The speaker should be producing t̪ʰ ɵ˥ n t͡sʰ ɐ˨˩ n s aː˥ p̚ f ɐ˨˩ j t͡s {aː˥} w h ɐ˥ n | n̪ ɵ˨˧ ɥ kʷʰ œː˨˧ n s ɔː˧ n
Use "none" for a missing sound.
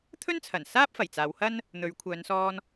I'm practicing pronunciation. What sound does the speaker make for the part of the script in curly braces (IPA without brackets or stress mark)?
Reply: aː˨˧